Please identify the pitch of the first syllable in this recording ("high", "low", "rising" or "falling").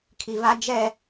low